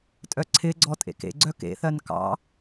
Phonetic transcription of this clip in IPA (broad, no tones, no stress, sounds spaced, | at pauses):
tʼ œ ǀʰ ɪ ɡ͡ǀ ɔ tʼ ḛ k ḛ ɡ͡ǀ œ k ḛ θ ɜ n k ɑ̰